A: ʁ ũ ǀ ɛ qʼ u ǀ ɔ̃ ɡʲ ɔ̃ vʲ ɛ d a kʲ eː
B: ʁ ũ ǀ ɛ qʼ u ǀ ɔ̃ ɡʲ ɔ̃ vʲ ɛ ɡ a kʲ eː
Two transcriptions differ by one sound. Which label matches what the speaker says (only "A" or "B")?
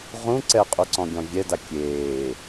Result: A